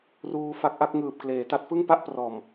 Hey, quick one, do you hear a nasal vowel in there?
no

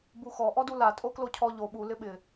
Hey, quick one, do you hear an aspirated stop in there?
yes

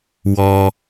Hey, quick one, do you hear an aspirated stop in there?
no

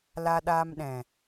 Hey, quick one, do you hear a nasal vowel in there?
yes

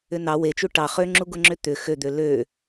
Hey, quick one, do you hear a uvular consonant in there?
yes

